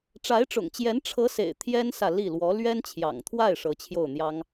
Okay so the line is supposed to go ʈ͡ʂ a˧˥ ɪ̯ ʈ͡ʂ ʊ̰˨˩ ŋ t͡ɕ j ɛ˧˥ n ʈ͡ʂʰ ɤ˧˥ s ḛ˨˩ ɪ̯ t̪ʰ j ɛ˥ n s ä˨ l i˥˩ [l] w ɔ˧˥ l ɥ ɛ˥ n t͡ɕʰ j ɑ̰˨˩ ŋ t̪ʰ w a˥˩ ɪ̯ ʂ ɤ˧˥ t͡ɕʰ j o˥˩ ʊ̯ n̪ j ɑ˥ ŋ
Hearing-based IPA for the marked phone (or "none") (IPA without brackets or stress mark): l